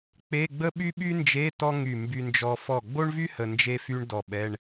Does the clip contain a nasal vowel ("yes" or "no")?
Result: no